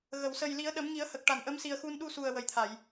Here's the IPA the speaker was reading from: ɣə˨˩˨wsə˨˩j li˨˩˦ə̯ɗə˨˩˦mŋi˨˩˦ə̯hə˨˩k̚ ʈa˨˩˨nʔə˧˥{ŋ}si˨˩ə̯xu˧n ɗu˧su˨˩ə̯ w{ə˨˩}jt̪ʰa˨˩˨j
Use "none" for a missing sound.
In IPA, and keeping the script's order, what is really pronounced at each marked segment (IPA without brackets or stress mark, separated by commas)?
m, ə˨˩